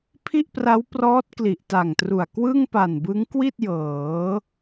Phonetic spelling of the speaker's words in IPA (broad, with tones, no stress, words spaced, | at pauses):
pʰi˥˩ʔpra˦˥wprɔː˦˥t̚ kli˨˩ʔta˨˩ŋtru˨˩a̯ kwɯ˥˩ŋpa˨˩nbɯ˦˥ŋ kwi˥˩t̚ jɤː˩˦